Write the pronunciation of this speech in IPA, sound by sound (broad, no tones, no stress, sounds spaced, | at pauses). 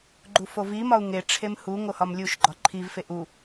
ɡ͡ǃ u f o v i m ɒ u̯ ŋ e ʈ͡ʂʰ e m h u ŋ o h ɒ m lʲ u ʃ ɡ͡ǃ ɒ ǃʰ i v f e ʔ u